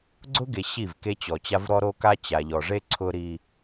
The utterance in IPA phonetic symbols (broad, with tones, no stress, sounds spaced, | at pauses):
ɡ͡ǀ ʊ˦ ɡ e˨ ɕ i˦˨ v k e˦ t͡ɕ ɔ˨ t͡ɕ a˦ v ɾ ɔ˦ ɾ o˦ k a˦ t͡ɕ a˨ ʎ ɔ˨ ʐ e˦ ǀʰ ʊ˦ ɾ i˦